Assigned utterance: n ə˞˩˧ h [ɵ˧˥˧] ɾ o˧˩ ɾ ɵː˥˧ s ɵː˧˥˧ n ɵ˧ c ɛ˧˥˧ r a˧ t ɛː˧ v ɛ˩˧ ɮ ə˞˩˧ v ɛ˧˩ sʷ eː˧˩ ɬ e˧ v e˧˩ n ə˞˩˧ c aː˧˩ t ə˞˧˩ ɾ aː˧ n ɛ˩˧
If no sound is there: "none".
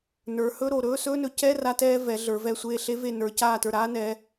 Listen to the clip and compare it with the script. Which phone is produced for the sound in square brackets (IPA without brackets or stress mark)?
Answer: ɵ˧˥˧